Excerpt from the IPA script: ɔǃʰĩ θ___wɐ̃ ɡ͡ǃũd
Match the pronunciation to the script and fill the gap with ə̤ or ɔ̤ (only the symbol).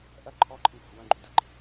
ɔ̤